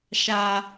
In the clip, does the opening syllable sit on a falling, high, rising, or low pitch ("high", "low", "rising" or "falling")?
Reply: high